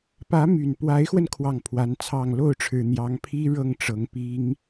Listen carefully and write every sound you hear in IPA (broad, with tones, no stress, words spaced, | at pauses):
pä˧˥my˨˩npwa˧˥ɪ̯xwə˧n kʰwɑ˥˩ŋpʰwa˧˥nt͡sʰɑ˥˧ŋ lo˥˩ʊ̯ʈ͡ʂʰɻ̩˨˩ n̪jɑ˧˥ŋpʰi˥ɻɤ˥˩ŋ ʈ͡ʂɤ˧˥ŋpi˥ŋ